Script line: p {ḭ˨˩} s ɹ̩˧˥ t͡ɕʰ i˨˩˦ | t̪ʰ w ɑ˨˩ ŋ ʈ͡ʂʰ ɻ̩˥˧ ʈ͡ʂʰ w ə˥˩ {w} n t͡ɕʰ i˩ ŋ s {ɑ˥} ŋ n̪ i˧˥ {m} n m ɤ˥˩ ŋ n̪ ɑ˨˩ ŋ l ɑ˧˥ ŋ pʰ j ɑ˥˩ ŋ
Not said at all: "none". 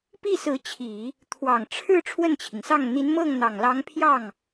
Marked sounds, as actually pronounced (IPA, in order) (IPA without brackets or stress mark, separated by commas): i˥˩, none, ɑ˥˩, none